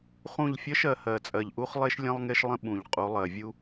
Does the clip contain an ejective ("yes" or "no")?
yes